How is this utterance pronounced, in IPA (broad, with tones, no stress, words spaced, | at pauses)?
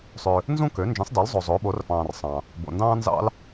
sˤø˨ | nzũ˥kø˨˥ nd͡ʒĩ˨˥sˤdɑ˨˥lzˤo˨ zˤoː˨˥ɓo˨˥rfɑ̃ː˨rsˤɑ̃˨ | bo̰˨ndɑ̃ː˥nzɑ̰˥l